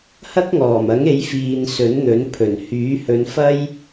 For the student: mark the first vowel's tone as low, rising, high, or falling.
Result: high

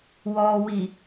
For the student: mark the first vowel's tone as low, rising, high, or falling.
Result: low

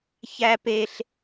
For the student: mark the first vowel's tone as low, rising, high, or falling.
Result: high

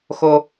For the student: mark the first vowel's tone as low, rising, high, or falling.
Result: high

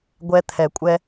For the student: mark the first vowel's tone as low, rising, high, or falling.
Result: high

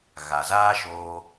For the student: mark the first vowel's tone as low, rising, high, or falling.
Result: low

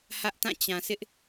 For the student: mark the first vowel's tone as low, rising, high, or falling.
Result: high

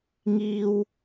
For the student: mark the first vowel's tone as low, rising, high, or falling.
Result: high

